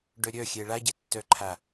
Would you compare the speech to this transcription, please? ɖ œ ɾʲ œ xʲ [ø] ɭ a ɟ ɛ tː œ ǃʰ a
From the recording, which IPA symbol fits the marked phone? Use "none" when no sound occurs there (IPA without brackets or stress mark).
ɛ